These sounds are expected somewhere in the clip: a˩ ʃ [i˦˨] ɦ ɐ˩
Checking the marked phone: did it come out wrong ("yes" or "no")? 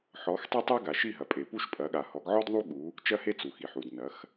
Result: no